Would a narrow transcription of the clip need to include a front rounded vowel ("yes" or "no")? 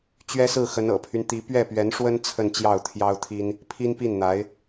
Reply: yes